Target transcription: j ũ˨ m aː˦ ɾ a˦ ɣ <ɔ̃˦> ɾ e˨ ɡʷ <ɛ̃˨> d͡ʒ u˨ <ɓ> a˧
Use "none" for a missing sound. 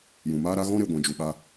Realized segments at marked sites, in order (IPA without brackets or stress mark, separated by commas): ɔ̃˦, ɛ̃˨, ɓ